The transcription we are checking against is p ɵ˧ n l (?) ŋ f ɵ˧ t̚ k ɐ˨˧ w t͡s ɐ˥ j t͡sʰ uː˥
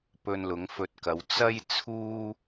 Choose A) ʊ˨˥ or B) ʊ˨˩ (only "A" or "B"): A